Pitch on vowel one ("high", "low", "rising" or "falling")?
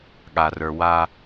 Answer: low